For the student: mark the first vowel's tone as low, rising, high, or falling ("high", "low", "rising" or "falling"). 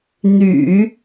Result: low